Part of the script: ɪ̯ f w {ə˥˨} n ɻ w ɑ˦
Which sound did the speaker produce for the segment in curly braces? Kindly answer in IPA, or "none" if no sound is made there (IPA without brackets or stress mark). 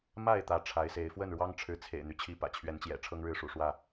ə˥˨